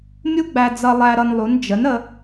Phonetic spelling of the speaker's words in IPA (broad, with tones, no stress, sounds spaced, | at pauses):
mʲ u˥ ɡ͡b æ˧ d͡z ʌ˧ lˠ æ˧ ɾ ʌ˧ n lˠ u˩˥ n d͡ʒ ə˩˥ n ə˧